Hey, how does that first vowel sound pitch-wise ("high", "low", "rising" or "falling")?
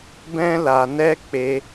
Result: high